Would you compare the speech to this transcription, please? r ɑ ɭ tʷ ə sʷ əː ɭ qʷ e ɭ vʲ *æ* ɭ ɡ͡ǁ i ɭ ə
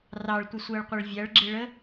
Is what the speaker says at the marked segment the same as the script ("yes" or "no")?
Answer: yes